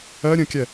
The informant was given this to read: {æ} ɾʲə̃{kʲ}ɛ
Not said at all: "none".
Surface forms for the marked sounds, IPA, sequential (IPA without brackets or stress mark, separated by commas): ɜ, kʲ